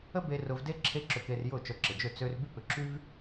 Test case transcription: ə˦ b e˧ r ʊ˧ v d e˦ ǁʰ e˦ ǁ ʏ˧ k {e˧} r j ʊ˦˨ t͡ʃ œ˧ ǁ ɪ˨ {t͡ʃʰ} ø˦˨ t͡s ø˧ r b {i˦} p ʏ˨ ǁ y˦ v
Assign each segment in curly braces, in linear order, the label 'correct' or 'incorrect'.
correct, incorrect: d͡ʒ, incorrect: y˦

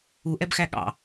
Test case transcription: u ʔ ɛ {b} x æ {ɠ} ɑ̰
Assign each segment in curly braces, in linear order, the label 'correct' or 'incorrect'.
correct, correct

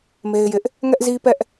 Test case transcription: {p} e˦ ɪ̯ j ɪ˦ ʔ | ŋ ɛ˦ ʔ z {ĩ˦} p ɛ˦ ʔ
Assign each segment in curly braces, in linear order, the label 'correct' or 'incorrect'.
incorrect: m, incorrect: i˦

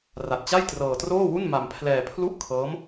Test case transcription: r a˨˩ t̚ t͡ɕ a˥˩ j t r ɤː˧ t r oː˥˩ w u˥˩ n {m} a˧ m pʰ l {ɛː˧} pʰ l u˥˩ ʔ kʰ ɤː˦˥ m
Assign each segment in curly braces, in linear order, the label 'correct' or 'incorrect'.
correct, correct

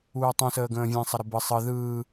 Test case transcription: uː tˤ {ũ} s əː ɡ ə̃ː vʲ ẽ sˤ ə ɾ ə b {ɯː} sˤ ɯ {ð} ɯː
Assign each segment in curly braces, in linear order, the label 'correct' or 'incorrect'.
correct, incorrect: ɯ, correct

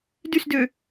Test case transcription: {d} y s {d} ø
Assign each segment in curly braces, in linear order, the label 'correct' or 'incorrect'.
correct, correct

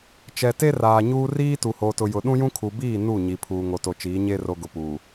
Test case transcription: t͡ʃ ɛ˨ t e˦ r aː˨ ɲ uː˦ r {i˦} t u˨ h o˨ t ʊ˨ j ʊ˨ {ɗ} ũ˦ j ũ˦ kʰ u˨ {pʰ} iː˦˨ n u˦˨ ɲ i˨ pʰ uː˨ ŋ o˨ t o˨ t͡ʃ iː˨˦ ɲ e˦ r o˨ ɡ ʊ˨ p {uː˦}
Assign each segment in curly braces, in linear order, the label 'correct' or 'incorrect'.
incorrect: iː˦, correct, incorrect: b, incorrect: uː˨

